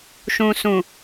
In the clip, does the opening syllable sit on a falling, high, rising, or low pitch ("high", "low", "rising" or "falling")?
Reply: low